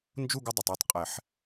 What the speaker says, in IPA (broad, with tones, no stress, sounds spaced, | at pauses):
n d͡ʒ u˥˨ ɡ ɪ˦ dˤ ʊ˨˩ tˤ o˦ tˤ qʼ ɛ˨˩˦ ħ